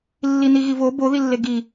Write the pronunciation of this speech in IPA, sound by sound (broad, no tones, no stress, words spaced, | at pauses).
lːiniɣivo bo ðilːeɡi